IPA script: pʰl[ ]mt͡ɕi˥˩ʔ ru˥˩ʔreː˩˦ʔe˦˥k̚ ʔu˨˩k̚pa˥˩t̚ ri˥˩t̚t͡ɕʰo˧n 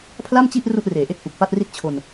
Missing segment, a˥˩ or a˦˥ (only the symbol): a˥˩